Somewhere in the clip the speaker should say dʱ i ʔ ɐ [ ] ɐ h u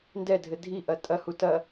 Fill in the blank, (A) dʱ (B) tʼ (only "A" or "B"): B